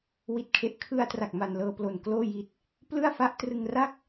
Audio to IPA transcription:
wi˨˩t̚kʰe˨˩ʔkʰɯ˧a̯tra˨˩k̚ ma˧nlɤː˧plo˨˩nkloː˥˩ ji˨˩t̚ | plɯ˥˩a̯ fa˦˥ʔtrɯ˧ŋra˥˩k̚

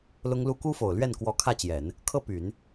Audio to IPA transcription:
lʊ˥ŋlu˥ ku˥fo˨˩ʊ̯lɥɛ˥˩n kwɔ˧˥kʰä˥˩t͡ɕjɛ˨˩˦n | kʰɤ˥˩py˨˩˦n

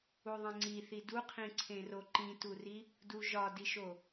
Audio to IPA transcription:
uðˤẽŋ͡ǀiθi duqʰĩǀʰẽro ǃĩturi | duʒɒdiʃo

